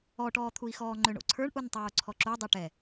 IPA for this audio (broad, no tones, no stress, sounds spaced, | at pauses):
ɔ ʈ ɔː t̪ʰ u i̯ x ɔː ŋ͡ǃ ø ɳ o̰ ǀʰ ə˞ ɳ ʔ u n tˤ oː ǀʰ ɔ ǁ u dˤ ø ʈ ɛ